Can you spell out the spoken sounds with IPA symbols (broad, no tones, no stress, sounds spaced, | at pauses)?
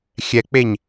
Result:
xʲ ɛ k͡p e ɲ